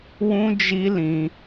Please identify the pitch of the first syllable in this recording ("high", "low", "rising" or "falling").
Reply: high